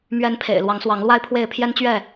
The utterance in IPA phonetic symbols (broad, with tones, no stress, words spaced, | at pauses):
mɥɛ˨˦npʰḛ˨˩ɪ̯ lwɑ˨˦ŋswɑ˨˦ŋlwa˦ɪ̯pʰwe˥˨ɪ̯ pʰjɛ˦nt͡ɕɥɛ˥˨